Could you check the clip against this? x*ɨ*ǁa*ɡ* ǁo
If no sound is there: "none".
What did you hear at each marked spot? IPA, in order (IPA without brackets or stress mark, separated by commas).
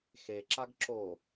e, ɡ